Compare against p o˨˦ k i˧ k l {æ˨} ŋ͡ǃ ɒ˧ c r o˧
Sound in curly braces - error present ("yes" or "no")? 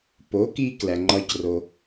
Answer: no